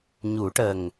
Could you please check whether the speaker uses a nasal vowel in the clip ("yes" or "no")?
no